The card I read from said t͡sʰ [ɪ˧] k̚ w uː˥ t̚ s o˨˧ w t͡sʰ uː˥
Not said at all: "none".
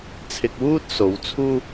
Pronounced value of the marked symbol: ɪ˧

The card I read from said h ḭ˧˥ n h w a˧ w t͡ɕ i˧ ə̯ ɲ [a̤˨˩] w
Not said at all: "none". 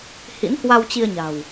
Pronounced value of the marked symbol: a̤˨˩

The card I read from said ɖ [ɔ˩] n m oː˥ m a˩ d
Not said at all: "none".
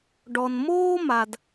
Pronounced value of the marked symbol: ɔ˩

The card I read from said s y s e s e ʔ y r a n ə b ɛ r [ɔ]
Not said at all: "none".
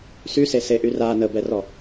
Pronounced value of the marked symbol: ɔ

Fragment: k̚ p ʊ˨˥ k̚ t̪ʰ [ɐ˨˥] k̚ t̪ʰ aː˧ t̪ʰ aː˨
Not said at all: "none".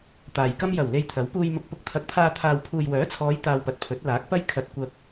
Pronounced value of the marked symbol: ɐ˨˥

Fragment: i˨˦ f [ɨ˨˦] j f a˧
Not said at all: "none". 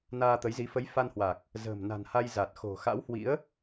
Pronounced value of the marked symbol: ə˨˦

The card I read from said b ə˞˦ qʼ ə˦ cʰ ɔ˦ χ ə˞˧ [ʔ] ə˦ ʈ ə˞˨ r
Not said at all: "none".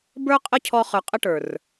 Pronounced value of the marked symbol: qʼ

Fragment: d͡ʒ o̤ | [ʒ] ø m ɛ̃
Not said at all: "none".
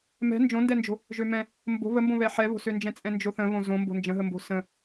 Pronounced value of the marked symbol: ʒ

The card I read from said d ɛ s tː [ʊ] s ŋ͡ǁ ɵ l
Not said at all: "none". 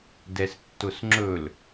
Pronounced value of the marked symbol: ʊ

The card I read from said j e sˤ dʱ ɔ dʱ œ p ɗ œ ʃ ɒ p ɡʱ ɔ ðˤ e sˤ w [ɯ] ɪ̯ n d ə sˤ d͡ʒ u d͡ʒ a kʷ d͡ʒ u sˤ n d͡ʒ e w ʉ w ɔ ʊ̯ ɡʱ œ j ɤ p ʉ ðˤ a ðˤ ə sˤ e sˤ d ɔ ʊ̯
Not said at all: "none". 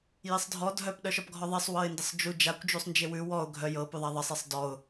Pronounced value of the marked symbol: ɤ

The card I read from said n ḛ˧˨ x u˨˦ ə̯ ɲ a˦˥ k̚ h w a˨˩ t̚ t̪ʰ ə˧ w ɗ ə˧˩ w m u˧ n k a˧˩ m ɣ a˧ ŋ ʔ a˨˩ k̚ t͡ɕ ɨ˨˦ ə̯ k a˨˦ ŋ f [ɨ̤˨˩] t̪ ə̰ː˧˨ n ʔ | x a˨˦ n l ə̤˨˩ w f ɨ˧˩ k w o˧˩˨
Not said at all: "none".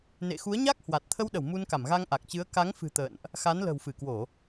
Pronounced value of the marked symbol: ɨ̤˨˩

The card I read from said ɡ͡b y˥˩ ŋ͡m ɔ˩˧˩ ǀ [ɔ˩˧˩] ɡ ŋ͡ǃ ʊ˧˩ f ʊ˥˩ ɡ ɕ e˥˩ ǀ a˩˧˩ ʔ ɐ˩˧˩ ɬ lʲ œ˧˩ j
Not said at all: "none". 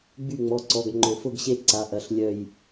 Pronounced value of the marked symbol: ɔ˩˧˩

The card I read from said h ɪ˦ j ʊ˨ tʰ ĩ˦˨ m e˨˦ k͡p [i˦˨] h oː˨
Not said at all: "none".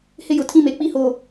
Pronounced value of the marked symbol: i˦˨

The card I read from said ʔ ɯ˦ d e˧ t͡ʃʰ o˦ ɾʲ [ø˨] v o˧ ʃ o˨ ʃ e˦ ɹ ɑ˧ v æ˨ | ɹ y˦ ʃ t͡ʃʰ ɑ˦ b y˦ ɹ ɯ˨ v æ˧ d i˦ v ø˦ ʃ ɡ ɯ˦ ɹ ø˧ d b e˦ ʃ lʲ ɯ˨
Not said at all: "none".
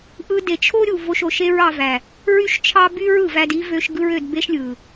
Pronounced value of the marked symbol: u˨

